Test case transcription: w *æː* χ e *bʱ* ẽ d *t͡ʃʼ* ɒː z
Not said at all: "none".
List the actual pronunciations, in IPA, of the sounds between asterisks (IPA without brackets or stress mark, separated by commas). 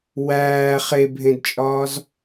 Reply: æː, bʱ, t͡ʃʼ